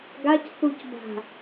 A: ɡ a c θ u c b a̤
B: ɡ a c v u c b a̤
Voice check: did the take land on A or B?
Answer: A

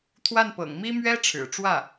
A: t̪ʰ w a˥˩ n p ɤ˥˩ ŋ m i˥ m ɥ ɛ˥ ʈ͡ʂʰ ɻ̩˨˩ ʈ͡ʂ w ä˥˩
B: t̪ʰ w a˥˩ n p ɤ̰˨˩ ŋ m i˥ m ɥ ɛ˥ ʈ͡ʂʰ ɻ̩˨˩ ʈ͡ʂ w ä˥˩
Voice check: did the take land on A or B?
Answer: B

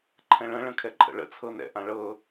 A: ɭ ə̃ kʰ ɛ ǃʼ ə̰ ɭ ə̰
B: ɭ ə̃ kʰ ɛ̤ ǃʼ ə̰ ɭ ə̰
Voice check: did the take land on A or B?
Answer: A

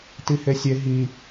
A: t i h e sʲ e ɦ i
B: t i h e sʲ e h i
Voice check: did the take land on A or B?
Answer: A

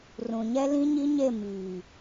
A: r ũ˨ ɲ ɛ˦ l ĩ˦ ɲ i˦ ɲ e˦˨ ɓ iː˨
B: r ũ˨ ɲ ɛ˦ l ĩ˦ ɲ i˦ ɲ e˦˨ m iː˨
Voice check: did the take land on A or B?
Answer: B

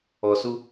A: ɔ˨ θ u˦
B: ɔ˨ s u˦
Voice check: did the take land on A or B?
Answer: B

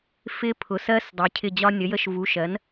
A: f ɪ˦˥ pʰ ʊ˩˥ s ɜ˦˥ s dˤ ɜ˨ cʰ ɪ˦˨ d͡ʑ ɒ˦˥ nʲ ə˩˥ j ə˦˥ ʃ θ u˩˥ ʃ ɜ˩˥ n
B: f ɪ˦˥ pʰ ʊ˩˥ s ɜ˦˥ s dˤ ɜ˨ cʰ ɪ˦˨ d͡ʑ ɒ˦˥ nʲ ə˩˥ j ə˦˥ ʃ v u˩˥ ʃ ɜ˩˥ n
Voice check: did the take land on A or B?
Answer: B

